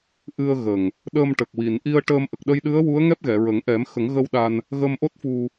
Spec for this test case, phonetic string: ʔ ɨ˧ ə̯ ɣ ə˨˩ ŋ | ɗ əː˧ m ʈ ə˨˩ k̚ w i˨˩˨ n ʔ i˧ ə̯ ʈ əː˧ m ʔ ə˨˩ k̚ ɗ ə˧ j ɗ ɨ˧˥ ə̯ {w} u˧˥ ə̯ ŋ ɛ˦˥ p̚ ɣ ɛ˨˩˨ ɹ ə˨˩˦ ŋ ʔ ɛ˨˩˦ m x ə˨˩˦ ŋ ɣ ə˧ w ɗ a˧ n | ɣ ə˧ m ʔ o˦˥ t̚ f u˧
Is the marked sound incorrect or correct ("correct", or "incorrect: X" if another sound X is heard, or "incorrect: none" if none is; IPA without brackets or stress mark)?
correct